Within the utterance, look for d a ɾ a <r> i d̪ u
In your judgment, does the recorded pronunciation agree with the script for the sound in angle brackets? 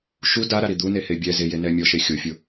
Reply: no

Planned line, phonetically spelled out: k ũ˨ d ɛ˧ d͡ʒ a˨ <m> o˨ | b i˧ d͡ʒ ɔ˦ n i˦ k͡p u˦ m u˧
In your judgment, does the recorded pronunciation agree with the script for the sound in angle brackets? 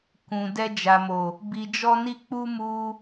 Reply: yes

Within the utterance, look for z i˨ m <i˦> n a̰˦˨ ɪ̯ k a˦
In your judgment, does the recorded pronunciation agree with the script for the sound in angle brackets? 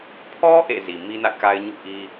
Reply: yes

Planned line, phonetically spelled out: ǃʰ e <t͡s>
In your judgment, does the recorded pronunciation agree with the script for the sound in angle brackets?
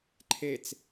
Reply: yes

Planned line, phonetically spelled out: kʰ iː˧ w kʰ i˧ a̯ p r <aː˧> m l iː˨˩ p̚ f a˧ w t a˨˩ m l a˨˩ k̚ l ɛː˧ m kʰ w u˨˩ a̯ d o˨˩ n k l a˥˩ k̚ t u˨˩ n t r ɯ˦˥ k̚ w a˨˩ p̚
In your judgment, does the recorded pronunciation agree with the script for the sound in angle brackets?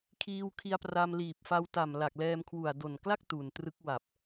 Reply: no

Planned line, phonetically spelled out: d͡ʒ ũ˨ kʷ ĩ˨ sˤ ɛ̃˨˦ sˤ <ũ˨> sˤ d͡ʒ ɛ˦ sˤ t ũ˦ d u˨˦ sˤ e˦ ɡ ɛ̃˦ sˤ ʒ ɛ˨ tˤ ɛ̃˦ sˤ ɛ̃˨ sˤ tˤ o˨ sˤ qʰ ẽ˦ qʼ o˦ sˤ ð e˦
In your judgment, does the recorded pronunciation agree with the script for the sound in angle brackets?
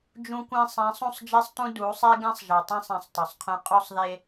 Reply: no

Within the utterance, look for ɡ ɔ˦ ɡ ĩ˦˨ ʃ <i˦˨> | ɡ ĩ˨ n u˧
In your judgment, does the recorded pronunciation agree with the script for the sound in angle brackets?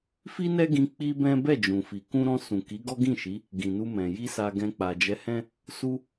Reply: no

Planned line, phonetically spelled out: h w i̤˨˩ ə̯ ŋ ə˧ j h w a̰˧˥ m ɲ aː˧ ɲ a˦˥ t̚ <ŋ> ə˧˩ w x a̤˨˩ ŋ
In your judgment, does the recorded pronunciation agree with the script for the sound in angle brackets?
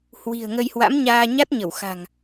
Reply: no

